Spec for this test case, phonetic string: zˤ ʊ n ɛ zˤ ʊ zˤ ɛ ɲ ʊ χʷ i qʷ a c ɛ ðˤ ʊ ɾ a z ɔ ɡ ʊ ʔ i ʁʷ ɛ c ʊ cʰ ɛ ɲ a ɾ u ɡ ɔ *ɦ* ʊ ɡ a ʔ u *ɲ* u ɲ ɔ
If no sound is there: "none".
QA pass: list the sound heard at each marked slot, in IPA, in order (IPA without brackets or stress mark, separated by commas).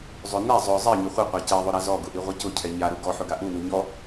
ħ, n